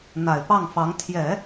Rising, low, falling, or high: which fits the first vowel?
low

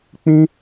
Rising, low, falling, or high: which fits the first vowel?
high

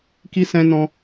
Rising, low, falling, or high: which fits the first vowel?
high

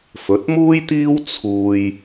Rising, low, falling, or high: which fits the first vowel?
rising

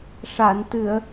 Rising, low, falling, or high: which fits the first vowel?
low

